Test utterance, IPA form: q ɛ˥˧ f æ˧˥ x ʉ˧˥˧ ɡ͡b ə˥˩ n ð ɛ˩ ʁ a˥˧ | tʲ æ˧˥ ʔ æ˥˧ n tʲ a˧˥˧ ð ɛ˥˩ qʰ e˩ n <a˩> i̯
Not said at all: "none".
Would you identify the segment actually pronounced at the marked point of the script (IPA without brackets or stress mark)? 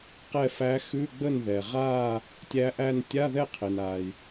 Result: a˩